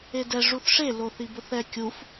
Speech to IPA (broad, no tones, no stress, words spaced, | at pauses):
edɛ ʐuθʂe loθibʊθɛ kʲuf